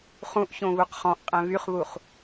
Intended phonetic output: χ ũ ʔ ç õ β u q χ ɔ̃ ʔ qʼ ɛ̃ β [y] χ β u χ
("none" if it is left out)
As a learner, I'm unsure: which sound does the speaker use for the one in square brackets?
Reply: y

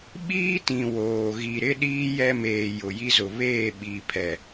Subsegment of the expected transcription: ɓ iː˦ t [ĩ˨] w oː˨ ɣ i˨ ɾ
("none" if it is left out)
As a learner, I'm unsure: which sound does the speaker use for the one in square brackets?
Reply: ĩ˨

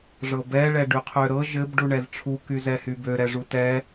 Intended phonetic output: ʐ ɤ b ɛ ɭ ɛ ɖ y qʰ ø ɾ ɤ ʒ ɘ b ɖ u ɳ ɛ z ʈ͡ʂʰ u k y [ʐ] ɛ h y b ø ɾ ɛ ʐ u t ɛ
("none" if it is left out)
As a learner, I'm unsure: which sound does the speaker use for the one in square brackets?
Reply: z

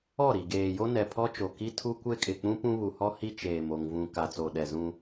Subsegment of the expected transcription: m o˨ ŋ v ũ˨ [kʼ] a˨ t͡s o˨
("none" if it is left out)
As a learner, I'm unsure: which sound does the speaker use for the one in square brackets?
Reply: k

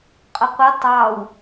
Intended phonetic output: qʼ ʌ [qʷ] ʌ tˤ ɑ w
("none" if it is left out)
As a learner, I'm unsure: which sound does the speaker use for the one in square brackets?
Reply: qʷ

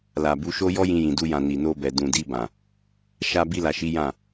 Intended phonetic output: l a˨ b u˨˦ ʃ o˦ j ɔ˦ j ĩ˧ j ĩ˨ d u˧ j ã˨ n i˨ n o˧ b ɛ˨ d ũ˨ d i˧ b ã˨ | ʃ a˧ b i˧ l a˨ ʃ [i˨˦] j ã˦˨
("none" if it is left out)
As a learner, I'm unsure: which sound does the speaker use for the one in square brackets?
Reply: i˨˦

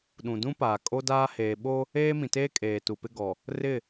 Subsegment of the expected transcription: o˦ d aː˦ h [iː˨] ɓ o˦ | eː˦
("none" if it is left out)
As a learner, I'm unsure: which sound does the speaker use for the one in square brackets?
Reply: eː˨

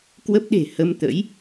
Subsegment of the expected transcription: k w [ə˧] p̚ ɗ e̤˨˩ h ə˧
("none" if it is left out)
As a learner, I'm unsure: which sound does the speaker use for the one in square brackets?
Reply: ə˦˥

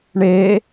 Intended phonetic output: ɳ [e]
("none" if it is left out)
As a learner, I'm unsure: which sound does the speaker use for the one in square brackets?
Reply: e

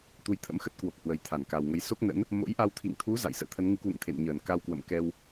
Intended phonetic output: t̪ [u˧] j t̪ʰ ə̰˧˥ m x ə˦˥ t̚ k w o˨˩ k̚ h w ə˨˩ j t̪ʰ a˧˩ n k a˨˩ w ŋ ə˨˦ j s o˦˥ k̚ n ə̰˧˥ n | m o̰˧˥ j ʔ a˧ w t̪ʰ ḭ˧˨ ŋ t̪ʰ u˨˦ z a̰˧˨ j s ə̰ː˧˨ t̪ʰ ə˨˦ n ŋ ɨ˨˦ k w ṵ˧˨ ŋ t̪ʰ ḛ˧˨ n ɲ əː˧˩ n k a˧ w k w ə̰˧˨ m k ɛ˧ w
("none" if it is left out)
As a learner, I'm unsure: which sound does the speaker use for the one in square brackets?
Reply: u˧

